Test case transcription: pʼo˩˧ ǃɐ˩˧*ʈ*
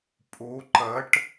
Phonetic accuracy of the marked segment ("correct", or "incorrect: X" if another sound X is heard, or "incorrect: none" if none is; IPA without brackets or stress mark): correct